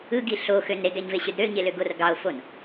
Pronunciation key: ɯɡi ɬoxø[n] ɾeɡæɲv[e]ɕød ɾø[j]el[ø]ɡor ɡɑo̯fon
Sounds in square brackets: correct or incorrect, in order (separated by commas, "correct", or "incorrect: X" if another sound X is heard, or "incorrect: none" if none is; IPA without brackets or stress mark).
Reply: correct, correct, incorrect: ɲ, correct